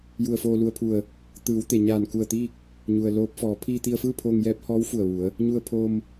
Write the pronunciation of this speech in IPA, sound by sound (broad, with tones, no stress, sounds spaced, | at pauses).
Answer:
j u˧˩ ə̯ f oː˧ l u˧ ə̯ pʰ u˧˩ ə̯ | t̪ ɯː˩˧ w t̪ e˩ ɲ aː˧˩ n k u˧˩ ə̯ t̪ iː˥˨ k̚ | ɲ u˩ ə̯ l oː˧˥ p̚ f ɔː˩˧ pʰ iː˧ t̪ i˧ ə̯ f ɯː˥˨ pʰ oː˧ ŋ j ɛː˧˥ p̚ h ɔː˧˥ w f u˧˩ ə̯ ʋ u˩˧ ə̯ | ɲ u˧ ə̯ pʰ oː˧ m